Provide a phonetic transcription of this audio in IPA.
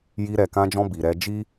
j i˧ ɾ ɛ˨ k ã˧ d͡ʒ ɔ̃˧ b i˨ ɾ ɛ˧ d͡ʒ i˦

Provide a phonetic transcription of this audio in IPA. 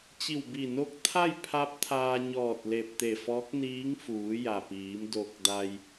t͡ɕ i˧˩ w b i˧˩ n o˧˥ k̚ t̪ʰ a˥˨ j pʰ a˧˥ p̚ t̪ʰ aː˧ ɲ ɔː˧˩ t̚ l e˧˩ p̚ t̪ e˧˩ f ɔː˧˥ k̚ n iː˧˥ ŋ f uː˩˧ j a˩ p iː˩˧ m d o˧ k̚ d a˧ j

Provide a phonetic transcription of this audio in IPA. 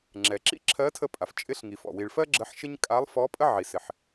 ŋ͡ǁ ɛ˩ ǁ ḭ˥ ǁʰ ɜ˧˥ tʰ ə˧ pʼ a˩ f t͡ʃʼ ɪ˧˥ ɬ ŋ i˩ f ɔ̰˩ w i˩ ɭ f ɜ˥ ɡ͡ǁ ə˧˥ ħ ʃ ɪ˥ ɲ kʼ a˧˥ lˠ f ɔ˧˥ pʼ ə˥ ʕ i˩ s ɪ˩ ħ

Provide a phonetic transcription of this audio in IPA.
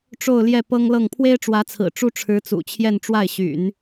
ʈ͡ʂ o˥˧ ʊ̯ l j ɛ˥˩ p ɤ˥ ŋ l ɤ˥˩ ŋ pʰ w e˥ ɪ̯ ʈ͡ʂ w ä˧˥ t͡sʰ ɹ̩˨˩ ʈ͡ʂ u˥ ʈ͡ʂʰ ɻ̩˧˥ t͡s ṵ˨˩ t͡ɕʰ j ɛ˥˧ n ʈ͡ʂ w a˥˩ ɪ̯ ɕ y̰˨˩˦ n

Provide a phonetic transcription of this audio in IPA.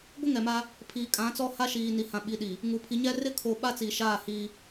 ɡʷ ɪ˦ ŋ ɛ˨ m a˦ | pʰ iː˨ kʼ ã˨˦ t͡s ɔ˦ h a˦ ʃ iː˨ n i˨ h ã˨ ɓ i˨ ɗ i˨ | ŋ uː˨ pʰ i˨ ɲ ɛ˦ r ɪ˦ kʰ o˨ ɓ a˦ t͡s i˨ ʃ aː˦˨ h iː˦

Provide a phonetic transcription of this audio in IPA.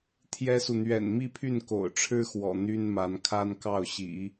t̪ʰ j ɛ˥ s u˨ n̪ ɥ ɛ̰˨˩ n m i˥˧ pʰ y˥˩ n k o̰˨˩ ʊ̯ ʈ͡ʂʰ ɻ̩˥ x w ɔ̰˨˩ n̪ y˥ n m a˧˥ n kʰ a˥ n k ɑ˥˩ ʊ̯ ɕ ḭ˨˩˦

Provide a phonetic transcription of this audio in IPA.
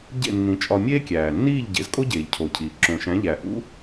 ɟ ḛ˥˩ nː ĩ˩˥ t͡ʃʼ ɒ˧ mʲ eː˥ kʲ æː˩ nː iː˥˩ ʎ ɟ ḛ˩˥ z kʼ o˥ ɟ eː˩ ʎ cʰ o˩ cʰ iː˩ ǁ õ˩ ʃ æ̃˩˥ ʎ æ˩ ʔ ṵ˥

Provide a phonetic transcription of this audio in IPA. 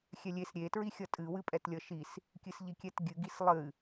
xʲ ɛ lʲ e s ɾʲ e t ɹ i xʲ ʌ tʼ ɨ w ɨ pʼ ɛ t lʲ ʌ ʃ i s | kʲ ɨ s ʎ i kʲ ɛ t ɡʲ ɨ ɡ i s lˠ ɨ

